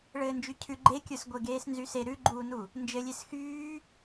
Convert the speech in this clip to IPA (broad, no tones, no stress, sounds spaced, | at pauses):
ɭ ɘː n d͡ʒ y cʰ ʉ ɡ͡ǃ e kʲ ə˞ s ɡʷ e ɡ eː s n z y s e ɾ ʉ ɡ͡ǃ uː n u | n d͡ʒ ɘ lʲ e s x yː